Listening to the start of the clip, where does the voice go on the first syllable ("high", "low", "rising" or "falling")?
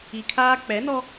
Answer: low